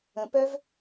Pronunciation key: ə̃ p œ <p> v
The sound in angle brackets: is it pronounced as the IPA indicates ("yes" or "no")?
no